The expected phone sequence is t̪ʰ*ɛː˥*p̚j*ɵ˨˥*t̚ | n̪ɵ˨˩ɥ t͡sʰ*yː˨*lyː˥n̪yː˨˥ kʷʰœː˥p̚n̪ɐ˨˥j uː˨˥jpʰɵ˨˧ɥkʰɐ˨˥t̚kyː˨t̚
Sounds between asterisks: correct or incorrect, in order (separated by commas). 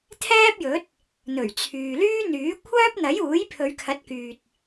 correct, correct, correct